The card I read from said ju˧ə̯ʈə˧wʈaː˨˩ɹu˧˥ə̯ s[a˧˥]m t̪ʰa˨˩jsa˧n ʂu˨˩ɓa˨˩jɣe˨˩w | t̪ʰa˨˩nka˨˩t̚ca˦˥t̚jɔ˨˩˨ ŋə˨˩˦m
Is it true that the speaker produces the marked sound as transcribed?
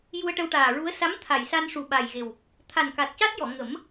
yes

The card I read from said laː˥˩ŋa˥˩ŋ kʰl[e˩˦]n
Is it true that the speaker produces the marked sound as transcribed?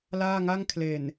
no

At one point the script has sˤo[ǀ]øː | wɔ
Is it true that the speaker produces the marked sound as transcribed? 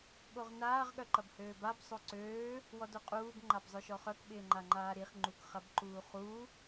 yes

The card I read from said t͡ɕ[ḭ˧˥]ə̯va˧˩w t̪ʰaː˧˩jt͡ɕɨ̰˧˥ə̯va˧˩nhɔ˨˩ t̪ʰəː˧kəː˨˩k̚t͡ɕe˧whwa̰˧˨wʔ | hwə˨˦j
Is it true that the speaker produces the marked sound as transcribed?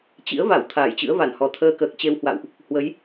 yes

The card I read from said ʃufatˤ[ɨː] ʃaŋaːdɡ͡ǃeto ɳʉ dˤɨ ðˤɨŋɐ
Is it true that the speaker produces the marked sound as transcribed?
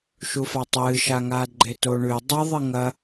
yes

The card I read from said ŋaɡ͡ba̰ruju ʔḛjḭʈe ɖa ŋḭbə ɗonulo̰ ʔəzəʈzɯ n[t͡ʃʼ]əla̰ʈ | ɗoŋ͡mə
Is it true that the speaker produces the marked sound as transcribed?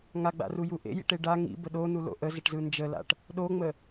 no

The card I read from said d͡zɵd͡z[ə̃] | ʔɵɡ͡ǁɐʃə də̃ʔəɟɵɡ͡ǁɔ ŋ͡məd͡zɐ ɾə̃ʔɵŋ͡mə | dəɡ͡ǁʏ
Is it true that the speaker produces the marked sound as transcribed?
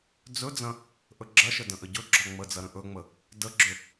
no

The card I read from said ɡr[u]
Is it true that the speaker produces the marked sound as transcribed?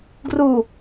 yes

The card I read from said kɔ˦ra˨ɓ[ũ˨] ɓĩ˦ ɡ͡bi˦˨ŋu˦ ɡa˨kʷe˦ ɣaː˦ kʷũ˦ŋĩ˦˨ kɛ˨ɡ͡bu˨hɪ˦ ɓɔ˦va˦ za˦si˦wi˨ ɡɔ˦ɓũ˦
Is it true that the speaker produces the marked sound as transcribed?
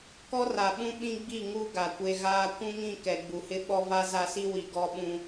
no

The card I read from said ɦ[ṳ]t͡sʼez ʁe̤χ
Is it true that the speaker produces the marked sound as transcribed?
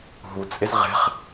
no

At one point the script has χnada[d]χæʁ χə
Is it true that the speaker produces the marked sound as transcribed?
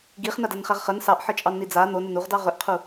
no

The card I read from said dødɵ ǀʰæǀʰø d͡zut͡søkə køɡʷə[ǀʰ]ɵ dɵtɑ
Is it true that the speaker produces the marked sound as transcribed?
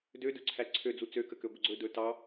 no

